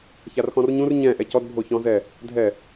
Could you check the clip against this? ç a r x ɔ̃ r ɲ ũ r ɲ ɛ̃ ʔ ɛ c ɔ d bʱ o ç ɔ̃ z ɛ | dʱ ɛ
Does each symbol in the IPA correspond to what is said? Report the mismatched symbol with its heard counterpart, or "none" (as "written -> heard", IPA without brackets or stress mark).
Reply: none